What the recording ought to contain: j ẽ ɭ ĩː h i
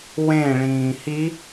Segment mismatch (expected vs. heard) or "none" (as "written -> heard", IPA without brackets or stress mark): j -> w